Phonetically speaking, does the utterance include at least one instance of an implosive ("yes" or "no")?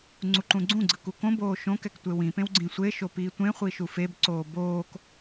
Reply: no